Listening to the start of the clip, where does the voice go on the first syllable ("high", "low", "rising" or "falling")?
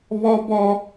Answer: high